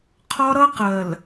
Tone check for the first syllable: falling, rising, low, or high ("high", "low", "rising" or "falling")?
high